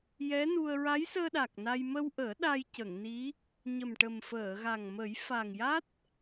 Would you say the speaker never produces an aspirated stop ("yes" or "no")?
yes